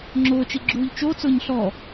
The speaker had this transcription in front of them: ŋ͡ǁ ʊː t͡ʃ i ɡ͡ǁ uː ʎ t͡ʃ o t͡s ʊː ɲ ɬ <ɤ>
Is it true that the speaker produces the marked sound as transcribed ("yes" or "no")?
no